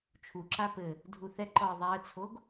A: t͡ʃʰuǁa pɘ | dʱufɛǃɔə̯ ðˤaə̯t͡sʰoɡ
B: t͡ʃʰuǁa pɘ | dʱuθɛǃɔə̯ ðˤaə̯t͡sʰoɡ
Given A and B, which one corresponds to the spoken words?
B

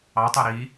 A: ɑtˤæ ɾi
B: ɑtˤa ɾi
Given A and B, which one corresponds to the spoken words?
B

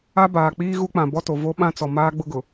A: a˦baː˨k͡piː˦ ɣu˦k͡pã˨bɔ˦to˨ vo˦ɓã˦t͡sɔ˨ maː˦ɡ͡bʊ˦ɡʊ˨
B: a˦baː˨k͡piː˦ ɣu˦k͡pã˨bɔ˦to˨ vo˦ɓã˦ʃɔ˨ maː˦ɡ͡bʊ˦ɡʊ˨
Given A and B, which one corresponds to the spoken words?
A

